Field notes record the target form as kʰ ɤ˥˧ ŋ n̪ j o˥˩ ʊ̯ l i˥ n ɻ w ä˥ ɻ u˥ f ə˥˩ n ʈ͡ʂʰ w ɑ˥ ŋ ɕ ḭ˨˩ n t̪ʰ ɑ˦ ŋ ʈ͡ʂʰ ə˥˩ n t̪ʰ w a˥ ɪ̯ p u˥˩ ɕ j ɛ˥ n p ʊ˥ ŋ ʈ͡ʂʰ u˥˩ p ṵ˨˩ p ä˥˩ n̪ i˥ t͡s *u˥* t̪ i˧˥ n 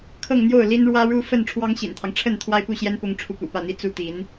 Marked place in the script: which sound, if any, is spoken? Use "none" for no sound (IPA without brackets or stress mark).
u˥